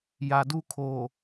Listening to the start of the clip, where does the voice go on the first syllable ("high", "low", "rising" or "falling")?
low